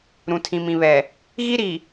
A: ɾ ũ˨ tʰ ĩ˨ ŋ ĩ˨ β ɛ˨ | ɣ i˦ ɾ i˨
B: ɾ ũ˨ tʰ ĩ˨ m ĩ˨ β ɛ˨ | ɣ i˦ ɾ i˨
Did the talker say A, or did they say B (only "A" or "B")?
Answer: B